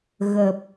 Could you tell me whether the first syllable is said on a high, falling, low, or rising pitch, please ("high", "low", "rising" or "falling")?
low